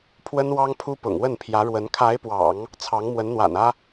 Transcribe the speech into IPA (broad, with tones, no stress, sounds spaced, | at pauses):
pʰ w ə˥ n w ɑ˥ ŋ pʰ u˥ p ʊ̰˨˩ ŋ w ə˥˩ n pʰ j ä˧˥ ɻ w ə˧˥ n kʰ a˧˥ ɪ̯ p w ɑ̰˨˩˦ ŋ | t͡sʰ ɑ˧˥ ŋ m w ə˧˥ n n̪ w a̰˨˩ n ä˥